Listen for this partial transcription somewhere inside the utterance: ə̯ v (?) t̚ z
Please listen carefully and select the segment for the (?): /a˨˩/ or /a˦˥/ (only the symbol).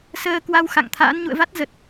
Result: a˦˥